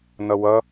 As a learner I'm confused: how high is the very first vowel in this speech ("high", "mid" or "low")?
mid